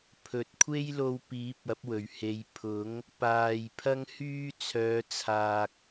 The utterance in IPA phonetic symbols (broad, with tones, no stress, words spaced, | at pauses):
pʰɵ˨˥t̚kʷʰe˥jlo˧wpiː˨˥p̚ ɐ˨˥p̚wɵ˨˩ɥhe˨˧j pʰʊ˨˥ŋ | paː˨j pʰɐ˥ŋhyː˥ t͡sʰœː˨˧t͡sʰaː˨k̚